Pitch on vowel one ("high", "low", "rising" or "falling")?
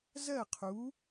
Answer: falling